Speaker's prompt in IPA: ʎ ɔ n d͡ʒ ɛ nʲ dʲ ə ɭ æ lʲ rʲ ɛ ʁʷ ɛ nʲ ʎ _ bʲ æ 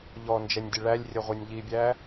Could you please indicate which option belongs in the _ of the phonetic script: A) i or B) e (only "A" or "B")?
A